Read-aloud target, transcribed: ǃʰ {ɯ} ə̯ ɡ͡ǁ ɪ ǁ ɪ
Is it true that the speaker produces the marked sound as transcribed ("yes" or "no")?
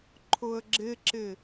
no